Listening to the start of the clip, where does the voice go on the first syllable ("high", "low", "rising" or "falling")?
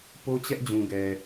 high